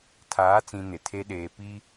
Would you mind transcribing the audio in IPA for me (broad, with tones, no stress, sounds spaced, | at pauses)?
tʰ aː˨˦ t͡s ĩ˨ n ɪ˨ tʰ e˦ ɗ eː˨ p i˦